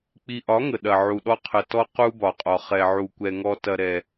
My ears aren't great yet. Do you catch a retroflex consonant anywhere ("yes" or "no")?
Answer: no